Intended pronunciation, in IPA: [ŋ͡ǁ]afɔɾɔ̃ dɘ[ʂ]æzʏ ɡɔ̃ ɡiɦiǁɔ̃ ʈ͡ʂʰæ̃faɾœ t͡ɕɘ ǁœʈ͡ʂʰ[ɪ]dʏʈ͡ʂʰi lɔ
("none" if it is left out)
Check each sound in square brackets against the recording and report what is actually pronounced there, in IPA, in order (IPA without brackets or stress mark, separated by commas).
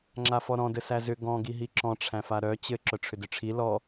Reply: ŋ͡ǁ, s, ʏ